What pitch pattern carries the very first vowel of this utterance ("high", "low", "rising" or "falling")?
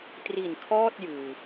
low